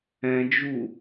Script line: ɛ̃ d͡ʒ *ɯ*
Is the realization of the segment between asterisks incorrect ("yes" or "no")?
yes